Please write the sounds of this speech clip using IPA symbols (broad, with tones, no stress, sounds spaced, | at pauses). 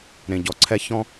ɾ ẽ˨ ɟ ɔ˨ ǀʰ ɛ˦ ç ɔ̃˦